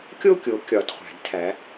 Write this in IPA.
kʲo˥˧kʲo˨˦ kʲɒ˨˦d χʷæ̤˨˩˦dtʰæ˨˦

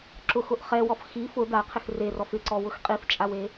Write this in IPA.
ǁʊxʊʔ χɛwɔf xi fʊ daqʰɪx rerɔf ɪǀɔwʊx qʼift͡ʃʼawe

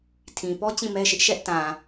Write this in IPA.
tʰĩ˨pɔ˦ t͡ɕĩ˦˨mɛ˦ʃɪ˦ʔ ʃɛ˦ʔtã˨

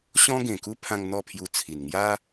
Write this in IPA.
ɕɔ̃˦ɡẽ˨˩ku˦pʰã˧ŋ n̪ɔ˥˧pʰju˧t͡sʰi˨˩n ŋja˦

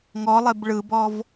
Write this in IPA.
ŋɔlˠeb ɭɯbɔv

